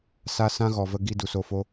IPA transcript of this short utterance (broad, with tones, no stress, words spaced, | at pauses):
sa˧ sã˦ ɣɔ˨və˧ɡi˧ du˨so˧fo˧